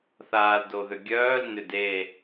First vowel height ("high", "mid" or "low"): low